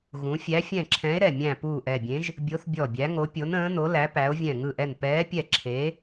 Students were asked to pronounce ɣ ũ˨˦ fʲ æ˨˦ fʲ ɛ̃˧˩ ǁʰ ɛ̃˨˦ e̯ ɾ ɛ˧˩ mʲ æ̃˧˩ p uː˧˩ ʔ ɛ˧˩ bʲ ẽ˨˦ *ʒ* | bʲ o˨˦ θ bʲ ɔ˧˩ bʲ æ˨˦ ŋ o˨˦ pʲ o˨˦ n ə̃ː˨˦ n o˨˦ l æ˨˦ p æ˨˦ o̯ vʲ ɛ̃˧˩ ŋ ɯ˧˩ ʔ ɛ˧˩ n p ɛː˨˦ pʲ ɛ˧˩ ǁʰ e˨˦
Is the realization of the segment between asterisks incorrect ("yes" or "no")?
no